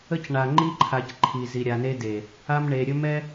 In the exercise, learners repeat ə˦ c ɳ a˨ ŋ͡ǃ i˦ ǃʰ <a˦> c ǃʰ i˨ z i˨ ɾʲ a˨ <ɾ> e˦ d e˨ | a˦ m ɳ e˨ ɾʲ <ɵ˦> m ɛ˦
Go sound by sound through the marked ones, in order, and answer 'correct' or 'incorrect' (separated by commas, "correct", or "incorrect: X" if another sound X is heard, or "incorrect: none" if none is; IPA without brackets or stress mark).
incorrect: a˨, incorrect: n, correct